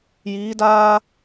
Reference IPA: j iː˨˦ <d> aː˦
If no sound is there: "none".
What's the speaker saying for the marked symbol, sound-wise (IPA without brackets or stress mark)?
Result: d